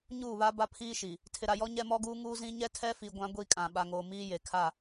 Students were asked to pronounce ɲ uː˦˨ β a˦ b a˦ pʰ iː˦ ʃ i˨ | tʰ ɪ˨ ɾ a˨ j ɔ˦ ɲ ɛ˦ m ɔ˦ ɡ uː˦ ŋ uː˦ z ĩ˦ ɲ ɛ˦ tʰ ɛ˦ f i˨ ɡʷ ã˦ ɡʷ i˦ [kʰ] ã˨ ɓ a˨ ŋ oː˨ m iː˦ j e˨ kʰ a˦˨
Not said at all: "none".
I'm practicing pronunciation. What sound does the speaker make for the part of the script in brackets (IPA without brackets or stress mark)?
kʼ